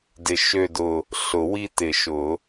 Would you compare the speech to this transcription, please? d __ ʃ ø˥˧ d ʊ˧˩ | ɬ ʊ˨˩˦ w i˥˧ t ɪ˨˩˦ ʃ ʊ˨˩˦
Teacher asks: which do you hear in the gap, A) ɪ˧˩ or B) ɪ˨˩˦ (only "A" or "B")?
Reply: A